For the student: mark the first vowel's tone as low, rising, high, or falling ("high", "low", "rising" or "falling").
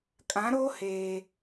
rising